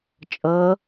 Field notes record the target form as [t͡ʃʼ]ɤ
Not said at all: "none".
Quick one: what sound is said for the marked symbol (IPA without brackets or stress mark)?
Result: t͡ʃʼ